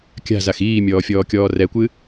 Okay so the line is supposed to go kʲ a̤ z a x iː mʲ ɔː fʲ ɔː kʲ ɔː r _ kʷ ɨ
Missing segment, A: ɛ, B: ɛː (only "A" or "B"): A